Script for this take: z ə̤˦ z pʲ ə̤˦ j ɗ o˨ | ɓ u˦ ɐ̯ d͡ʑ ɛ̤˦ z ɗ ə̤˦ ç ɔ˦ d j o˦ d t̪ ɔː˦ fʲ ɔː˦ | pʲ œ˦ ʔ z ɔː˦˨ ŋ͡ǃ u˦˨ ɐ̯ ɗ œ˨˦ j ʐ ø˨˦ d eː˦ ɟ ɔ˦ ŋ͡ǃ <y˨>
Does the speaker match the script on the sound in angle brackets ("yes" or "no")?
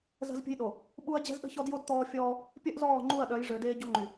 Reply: yes